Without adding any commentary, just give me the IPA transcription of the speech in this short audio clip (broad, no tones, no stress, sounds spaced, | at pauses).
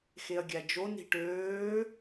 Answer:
x e ɐ̯ ɡʲ æ d͡ʒ o n i̤ ʈ øː